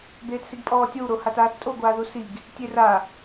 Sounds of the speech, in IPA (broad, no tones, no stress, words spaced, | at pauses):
beːtsiɡpʼɔːtʲow ɾohataːθtʼo ɡʷaːðusiɡ | tʲera